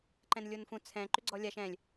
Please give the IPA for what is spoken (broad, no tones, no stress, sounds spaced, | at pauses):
ǃ ɛ̃ n lʲ o n f ũ t͡sʰ ɛ̃ ǃ ʏ ɡ͡ǀ ɔ lʲ a ʃ ɛ̃ lʲ